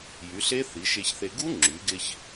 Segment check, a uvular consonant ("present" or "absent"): absent